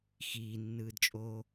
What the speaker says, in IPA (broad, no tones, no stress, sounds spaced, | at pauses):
x iː nː ɯː d t͡ʃʼ oː